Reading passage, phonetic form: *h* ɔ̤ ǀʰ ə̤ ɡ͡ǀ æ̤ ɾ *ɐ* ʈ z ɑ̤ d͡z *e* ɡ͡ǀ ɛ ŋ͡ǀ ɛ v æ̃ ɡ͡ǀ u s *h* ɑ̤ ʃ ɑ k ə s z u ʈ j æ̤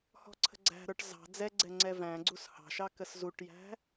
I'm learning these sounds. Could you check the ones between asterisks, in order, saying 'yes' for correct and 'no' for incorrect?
yes, no, no, yes

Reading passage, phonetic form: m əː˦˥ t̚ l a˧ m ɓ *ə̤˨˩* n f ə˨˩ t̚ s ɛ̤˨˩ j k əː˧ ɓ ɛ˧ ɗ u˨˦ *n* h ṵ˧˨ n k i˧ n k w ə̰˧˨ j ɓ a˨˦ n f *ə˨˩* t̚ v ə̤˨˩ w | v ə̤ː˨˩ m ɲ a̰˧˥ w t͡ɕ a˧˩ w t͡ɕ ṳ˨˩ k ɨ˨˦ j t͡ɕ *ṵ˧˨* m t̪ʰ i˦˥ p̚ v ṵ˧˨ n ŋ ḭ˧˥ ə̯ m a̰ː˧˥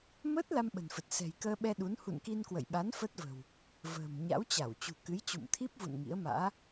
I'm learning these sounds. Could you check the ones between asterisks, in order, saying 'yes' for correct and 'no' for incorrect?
yes, yes, no, yes

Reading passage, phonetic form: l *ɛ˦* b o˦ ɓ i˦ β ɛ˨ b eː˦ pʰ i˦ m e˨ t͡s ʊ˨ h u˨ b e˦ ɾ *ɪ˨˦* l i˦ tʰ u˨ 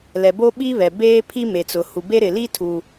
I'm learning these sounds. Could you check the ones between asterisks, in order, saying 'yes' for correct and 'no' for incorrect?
no, no

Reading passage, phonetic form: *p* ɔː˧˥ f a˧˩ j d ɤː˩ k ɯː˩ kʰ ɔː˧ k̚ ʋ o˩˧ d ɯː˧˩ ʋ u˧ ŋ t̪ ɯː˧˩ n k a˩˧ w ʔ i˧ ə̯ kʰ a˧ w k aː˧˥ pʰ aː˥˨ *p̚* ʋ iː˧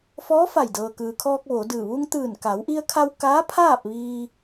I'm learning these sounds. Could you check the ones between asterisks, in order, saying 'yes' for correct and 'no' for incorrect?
no, yes

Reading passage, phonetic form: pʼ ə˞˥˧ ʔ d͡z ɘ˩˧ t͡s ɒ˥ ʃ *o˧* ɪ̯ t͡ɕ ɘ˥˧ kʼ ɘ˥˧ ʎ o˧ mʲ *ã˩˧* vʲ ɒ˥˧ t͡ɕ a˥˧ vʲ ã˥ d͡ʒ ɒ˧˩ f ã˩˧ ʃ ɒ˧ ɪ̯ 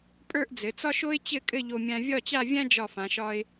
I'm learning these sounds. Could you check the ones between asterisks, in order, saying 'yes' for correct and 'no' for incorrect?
no, no

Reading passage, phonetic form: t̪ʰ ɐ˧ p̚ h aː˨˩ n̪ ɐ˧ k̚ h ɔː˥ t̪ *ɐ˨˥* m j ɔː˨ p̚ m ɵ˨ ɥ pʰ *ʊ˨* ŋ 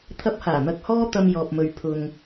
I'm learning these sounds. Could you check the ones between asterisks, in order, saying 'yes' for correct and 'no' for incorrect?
no, yes

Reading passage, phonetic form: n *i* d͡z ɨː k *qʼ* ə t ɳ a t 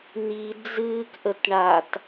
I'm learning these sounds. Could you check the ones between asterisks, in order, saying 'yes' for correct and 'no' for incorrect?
yes, no

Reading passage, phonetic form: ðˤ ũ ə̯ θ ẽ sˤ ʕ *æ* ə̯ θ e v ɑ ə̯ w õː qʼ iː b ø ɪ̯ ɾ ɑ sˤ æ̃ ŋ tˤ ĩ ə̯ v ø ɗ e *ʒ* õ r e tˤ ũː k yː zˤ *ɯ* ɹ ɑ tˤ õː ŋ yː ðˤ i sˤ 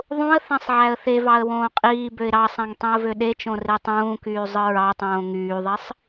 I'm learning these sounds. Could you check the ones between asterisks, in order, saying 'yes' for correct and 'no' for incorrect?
yes, no, yes

